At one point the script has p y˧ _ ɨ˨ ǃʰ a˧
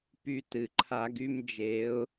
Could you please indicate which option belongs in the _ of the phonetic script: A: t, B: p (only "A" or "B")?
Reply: A